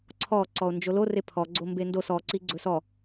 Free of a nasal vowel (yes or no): yes